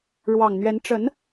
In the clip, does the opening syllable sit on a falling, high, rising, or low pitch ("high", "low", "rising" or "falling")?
low